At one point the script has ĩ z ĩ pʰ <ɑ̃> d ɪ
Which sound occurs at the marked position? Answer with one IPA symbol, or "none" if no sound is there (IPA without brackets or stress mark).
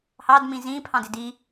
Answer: ɑ̃